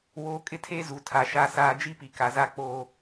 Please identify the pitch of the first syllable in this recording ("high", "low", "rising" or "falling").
rising